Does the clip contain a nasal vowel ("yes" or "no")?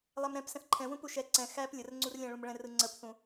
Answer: yes